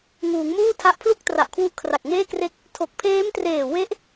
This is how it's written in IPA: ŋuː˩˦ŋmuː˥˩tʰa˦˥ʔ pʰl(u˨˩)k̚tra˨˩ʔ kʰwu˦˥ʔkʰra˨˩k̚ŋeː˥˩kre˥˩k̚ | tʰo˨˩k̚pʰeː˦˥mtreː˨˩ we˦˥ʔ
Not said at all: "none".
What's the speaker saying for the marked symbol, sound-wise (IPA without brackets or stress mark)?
u˥˩